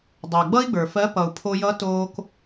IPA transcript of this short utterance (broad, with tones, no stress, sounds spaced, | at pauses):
dˤ ə˞˩ ɡ͡b ʌ˥ i̯ ɡ͡b ə˞˩ f ɜ˧˥ p ʌ˩ u̯ pʰ o˧ j ʌ˧˥ t oː˧ k